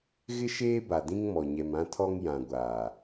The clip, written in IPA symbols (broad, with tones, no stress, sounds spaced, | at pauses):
ɣ ɪ˦ ʃ eː˦ b a˨ d ĩ˦ ŋ m ɔ˨ ɲ ɛ˨ m ã˦ tʰ ɔ˦ ŋ j ã˨ ɡʷ aː˨